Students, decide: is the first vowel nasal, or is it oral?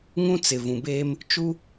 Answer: nasal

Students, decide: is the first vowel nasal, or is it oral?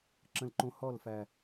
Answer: nasal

